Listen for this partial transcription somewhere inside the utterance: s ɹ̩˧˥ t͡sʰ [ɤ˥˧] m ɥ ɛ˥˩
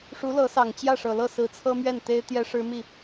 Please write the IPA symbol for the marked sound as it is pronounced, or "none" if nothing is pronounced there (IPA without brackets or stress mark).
ɤ˥